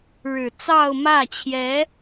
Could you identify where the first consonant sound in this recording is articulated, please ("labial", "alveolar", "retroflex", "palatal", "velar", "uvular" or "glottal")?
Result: retroflex